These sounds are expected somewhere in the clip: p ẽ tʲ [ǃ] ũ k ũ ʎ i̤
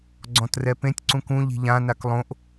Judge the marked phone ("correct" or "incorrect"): incorrect